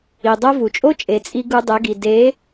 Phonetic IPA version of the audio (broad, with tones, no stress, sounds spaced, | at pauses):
i˨ dˤ o˦ v u˨ t͡ʃʼ o˦ t͡ʃʼ e˨ t͡sʼ i˧ ɡ u˧ dˤ e˨˦ ɡ i˨ d e˨˦